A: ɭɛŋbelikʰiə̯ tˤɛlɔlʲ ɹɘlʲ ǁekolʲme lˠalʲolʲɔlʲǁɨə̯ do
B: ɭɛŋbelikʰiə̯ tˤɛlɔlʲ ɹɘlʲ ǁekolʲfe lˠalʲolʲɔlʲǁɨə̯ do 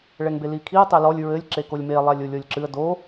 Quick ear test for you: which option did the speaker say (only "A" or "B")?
A